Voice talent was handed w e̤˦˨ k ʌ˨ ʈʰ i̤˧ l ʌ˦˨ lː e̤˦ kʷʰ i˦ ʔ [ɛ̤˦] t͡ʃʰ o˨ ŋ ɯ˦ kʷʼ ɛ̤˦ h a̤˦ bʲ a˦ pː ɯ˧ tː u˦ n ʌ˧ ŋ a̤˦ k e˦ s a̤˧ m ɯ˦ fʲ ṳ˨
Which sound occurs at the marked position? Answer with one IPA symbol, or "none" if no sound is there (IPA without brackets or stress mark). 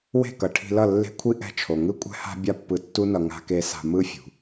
ɛ̤˦